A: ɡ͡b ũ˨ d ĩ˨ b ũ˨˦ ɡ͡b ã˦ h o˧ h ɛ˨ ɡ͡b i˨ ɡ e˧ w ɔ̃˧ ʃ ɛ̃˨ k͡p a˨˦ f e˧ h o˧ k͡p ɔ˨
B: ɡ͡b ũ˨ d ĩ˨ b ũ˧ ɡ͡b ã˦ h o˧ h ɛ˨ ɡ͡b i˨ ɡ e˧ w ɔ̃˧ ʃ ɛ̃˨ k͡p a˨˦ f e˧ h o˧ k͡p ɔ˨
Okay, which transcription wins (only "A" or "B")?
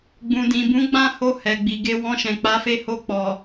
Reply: A